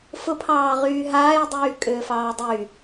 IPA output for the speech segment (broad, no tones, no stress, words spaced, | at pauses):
fʊpʰɑːʁyː ɦaːj dˤyːkʼʏːfɑːdˤy